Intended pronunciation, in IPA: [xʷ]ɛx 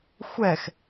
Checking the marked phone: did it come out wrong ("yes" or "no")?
no